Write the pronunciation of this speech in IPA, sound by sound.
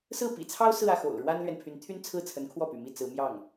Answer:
s ɹ̩˥˩ p ḭ˨˩ t͡sʰ ɑ˥ ʊ̯ s ɹ̩˥˧ ä˥˩ x o̰˨˩ ʊ̯ ɻ w a˥ n l ɥ ɛ˨ n pʰ y˧˥ n t̪ʰ y˥ n t͡sʰ ɹ̩˥˩ t͡sʰ ə˧˥ n kʰ w ɔ˥˩ p y̰˨˩ m i˥˩ t͡s ɹ̩˧˥ m j ɑ˥˩ ŋ

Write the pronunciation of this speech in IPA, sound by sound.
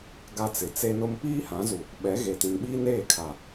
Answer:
ɡ a˦ t͡s ɪ˨ t͡s e˦ n ʊ˦ m p iː˦ h ã˨˦ z u˨ | ɓ ɛ˨˦ ɣ e˨ t ĩ˨ n ɓ iː˦ n eː˦˨ kʰ a˨

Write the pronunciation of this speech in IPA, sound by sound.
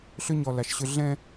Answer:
ɬ ʏ˦ ɲ ɔ˨ l a˨ ʃ ɕ ʏ˦ ɮ ɛ̃˦

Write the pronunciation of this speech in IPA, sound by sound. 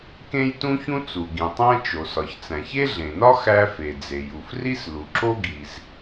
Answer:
k ẽ˥ j t ũ˥ ç ũ˥ t͡s u˩ ɡ ĩ˩ tˤ æ̃˥ t͡ʃ o˩ s ɒ˩ ç t͡s æ̃˩ ç e˥ ɮ ẽ˩ n ɒ˥ x æ˥ f e˩ d͡z e˩ j u˩ f r i˥ s l u˩ ǁ o˥ ɡ i˩ z

